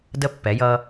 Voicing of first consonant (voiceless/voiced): voiced